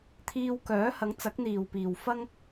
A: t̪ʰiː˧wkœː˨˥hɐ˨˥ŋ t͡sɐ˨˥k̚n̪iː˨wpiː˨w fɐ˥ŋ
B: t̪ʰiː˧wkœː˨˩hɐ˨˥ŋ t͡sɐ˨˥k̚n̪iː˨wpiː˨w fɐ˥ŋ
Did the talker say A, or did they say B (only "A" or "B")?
A